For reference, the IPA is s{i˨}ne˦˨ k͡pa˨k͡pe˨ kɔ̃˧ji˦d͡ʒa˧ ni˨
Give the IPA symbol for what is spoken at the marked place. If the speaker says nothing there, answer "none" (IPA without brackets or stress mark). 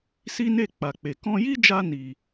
i˦